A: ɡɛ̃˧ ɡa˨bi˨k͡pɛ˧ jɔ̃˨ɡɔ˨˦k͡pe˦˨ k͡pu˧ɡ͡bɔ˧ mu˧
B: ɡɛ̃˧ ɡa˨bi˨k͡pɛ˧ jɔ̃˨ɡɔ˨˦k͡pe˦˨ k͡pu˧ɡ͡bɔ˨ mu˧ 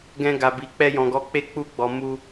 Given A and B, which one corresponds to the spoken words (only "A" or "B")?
B